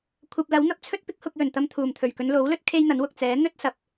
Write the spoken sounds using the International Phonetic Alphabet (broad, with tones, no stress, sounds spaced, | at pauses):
kʷʰ ɐ˨ p̚ l ɐ˨˥ w n̪ ɐ˧ p̚ t͡sʰ ɵ˥ t̚ p ɪ˥ k̚ h ʊ˧ k̚ j ɵ˨˩ n t̪ ɐ˧ m t̪ʰ uː˨˩ m t̪ʰ ɵ˨˩ ɥ k ɵ˨˧ n l o˨˥ w l ɵ˥ t̚ kʰ e˥ j n̪ ɐ˨˥ n w ʊ˨ k̚ t͡s ɛː˨˥ n̪ ɵ˥ t̚ s ɐ˨˥ p̚